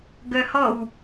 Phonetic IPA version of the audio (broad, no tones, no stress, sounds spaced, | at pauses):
ɡ œ h ɔ w